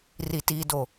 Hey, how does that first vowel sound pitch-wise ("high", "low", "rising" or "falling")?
low